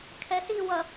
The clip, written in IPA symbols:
kʰ ɛ s i w ʌ

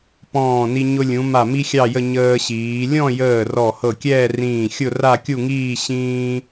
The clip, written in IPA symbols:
p ɔ̃ː˧˩ n i˧ ɲ ʊ˧ lʲ ũ˩˧ m a˧˩ m i˥ xʲ ɑ˥˧ j ə˥˧ ɲ əː˧ ɕ iː˩˧ lʲ ɔ̃˥˧ j əː˧˩ r ɔ˧˩ h ɤ˧˩ kʲ ɛː˥˧ r ĩː˧˩ xʲ ʊ˥˧ r a˥˧ kʲ u˥˧ ŋ iː˥˧ ɕ ĩː˥

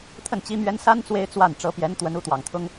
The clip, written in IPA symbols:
t̪ʰ ə˥˩ n t͡ɕ i˥ m ɥ ɛ˥ n s a˥ n t͡s w e˥ ɪ̯ t͡s w a˥˩ n ʈ͡ʂ ɤ˧˥ p j ɛ˧˥ n t̪ w ə˧˥ n u˧˥ t̪ w ɑ˨˩ ŋ t̪ʰ ʊ˥ ŋ

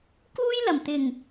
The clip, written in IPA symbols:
k uː˥ j l ɐ˨˩ m t̪ ɪ˨˩ ŋ

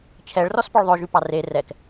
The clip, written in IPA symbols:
t͡ʃʰ ɛ ɭ r ɔ s p ɔ ɭ ðˤ ø ʒ y p ɑ r e r ɛ k

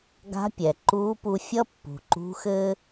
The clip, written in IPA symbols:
ɡ a̤˧˥ pʲ ɛ˩ ǃ uː˧˥ p u˧ fʲ ʌ˥ pː ṳ˩ ǃ ṳ˧˥ x ɘː˥

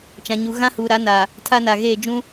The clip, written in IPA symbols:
t͡ʃ ã˨ ɲ u˨ ɣ ã˦ h uː˨ ɾ a˨˦ n a˨ | tʰ a˦ n a˨ ɣ eː˦˨ d͡ʒ ũ˦

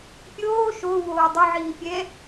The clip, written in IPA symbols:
pʲ oː ʃ o w oː dˤ ʊ ʕ iː pʲ ɛ

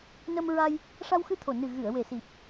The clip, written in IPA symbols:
n ə˧ m ɹ a˧ j | ʂ a˧ w x ɨ˧ t̪ʰ o˨˩ n ɨ˨˩ ɣ ɨ˨˩˨ ə̯ w e˨˩ s i˨˩ p̚

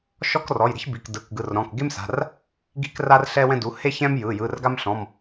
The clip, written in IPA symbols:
ʃ ɔ˥ k r ɔ˩˧˩ j ɾ i̤˥ ç b i˩˧˩ k d ɯ˩˧˩ k ɡ ɯ˩˧˩ r ɾ ɔ̃˩˧˩ k ɡ e˥ m s a̤˩˧˩ r | ɡ i̤˥ k r a˥ r ɬ ɛ˥ w ɛ̃˥ d u˩˧˩ h e˥ ç ɛ̃˥ m j ɯ˩˧˩ j ɯ˩˧˩ r ɡ a˥ m ɬ ɔ̃˩˧˩ m

